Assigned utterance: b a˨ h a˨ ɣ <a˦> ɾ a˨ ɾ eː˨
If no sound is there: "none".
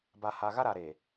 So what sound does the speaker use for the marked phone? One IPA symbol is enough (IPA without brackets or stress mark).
a˦